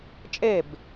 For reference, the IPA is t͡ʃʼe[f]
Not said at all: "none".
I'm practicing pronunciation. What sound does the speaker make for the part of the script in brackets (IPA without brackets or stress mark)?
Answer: b